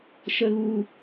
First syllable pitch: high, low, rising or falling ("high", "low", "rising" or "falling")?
low